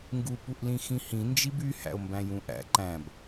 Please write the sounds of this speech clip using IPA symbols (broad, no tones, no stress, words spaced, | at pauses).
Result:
ŋɡu puʔlĩxĩhĩ nd͡ʒiby hæ̰o̯mbæ̃jũʔæ̰ ǃæ̃b